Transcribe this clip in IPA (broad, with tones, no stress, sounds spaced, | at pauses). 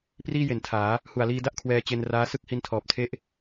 p r iː˥˩ j e˨˩ n tʰ aː˩˦ | h u˨˩ a̯ l iː˧ d a˥˩ ʔ kʰ w ɛː˧ t͡ɕ e˧ n r aː˦˥ s ɯ˥˩ k̚ h i˧ n tʰ ɔː˨˩ p̚ tʰ e˦˥ ʔ